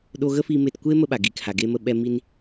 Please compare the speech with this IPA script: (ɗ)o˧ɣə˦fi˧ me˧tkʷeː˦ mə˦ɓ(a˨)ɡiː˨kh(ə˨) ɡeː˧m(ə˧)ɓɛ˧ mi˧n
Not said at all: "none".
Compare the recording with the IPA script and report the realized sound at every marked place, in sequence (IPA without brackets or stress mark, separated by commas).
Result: ɗ, a˨, a˨, ə˧